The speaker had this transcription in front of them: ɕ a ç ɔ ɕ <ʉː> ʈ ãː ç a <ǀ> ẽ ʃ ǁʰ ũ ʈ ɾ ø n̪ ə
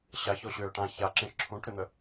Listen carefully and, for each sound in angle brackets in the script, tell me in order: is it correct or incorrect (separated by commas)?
incorrect, incorrect